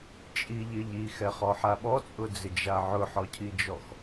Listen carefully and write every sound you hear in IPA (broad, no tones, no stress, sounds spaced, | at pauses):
t͡ʃʼ i ʎ ɪ ʎ i x ɛ χ ɔ ħ a ɓ ɔ t͡sʼ ʊ d͡z ɪ d͡ʒ a ʕ ʊ ħ ɔ cʰ i d͡ʒ ɔ x